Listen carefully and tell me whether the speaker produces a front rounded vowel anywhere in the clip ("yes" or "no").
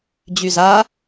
yes